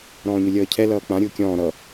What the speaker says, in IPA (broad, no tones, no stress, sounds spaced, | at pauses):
ɾ ɔ̃ː ɲ ʊ lʲ ʌː cʰ ɛ l ʌː k͡p ã ɾʲ ʊː kʲ ɔ̃ː ɾ ʌ